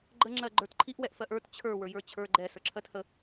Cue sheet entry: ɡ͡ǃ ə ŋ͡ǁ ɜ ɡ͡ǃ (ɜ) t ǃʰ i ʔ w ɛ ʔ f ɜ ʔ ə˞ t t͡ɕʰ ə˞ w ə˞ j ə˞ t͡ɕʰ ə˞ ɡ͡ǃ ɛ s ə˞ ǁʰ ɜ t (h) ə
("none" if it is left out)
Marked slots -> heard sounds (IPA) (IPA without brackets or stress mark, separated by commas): ə˞, h